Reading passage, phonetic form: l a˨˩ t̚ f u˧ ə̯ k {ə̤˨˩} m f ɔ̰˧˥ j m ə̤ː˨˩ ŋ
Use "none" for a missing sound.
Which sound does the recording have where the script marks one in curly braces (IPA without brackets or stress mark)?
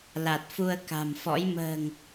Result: a̤˨˩